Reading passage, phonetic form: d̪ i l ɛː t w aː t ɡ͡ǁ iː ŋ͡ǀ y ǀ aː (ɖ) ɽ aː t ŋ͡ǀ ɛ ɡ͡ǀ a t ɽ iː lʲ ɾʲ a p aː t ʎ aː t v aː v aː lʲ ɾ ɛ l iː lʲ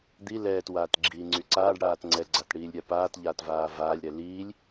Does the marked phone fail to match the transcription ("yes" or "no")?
no